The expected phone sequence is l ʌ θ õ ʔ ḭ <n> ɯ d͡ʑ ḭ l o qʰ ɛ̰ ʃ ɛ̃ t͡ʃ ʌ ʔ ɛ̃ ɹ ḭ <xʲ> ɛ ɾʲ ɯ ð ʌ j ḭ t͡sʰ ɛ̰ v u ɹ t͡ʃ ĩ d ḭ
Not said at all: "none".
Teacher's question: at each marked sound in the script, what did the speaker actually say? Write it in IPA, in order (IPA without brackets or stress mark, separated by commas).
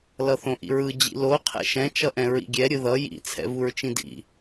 ɹ, ɡʲ